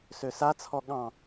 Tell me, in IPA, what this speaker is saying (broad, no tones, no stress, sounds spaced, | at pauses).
s ø s a t͡sʰ ɔ ɠ ɑ̃